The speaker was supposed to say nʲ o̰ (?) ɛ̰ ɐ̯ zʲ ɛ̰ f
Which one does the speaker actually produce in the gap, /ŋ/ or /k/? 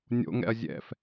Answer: ŋ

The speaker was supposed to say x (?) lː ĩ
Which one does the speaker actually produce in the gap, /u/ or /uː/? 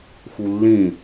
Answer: u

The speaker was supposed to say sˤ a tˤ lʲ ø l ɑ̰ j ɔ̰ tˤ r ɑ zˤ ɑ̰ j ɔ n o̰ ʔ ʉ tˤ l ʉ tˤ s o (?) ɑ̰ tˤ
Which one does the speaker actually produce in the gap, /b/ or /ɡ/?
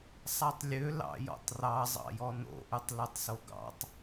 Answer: ɡ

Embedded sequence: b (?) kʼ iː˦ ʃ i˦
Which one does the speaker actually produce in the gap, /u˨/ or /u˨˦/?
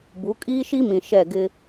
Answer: u˨˦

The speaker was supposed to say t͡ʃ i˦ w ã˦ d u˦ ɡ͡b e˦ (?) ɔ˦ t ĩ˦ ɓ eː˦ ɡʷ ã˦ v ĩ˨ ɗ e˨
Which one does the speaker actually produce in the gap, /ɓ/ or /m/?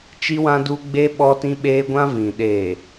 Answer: ɓ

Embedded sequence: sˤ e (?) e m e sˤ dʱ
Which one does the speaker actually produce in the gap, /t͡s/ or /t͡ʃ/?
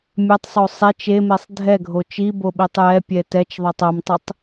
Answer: t͡ʃ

